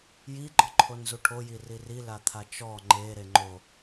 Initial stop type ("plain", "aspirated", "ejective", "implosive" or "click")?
click